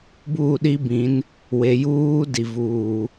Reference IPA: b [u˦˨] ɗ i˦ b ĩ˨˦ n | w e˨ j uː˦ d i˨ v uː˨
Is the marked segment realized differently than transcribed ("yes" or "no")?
yes